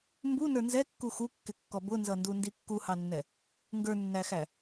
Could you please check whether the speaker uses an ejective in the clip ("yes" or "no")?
no